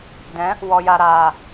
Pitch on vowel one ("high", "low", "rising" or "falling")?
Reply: rising